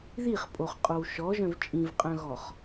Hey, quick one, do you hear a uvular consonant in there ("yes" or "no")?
yes